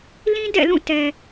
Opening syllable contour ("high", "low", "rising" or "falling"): high